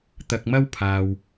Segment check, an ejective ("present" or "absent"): absent